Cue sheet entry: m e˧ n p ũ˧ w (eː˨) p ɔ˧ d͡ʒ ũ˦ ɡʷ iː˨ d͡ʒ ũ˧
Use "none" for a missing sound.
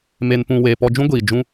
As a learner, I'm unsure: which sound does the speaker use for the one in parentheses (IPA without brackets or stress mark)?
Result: eː˨